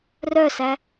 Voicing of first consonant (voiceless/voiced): voiced